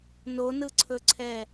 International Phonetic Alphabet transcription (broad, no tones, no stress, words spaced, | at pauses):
nonɯǀʰɵǀʰɛ